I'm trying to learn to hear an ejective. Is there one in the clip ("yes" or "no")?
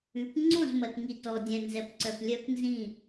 no